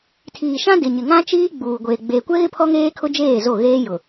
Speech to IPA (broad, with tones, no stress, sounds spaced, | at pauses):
tʰ iː˨ ʃ ã˦ d ɪ˨ ɲ ɪ˨ ŋ ã˦ t͡ʃ iː˦ ɡ͡b uː˨ ɡʷ eː˨ ɡ͡b eː˨ kʷ ɛ˦ ɣ ɪ˦ pʰ ɔ˦ ŋ eː˦ kʰ ʊ˦ d͡ʒ eː˦˨ z o˦˨ ɣ eː˦ j ʊ˨